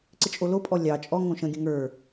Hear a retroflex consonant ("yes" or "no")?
no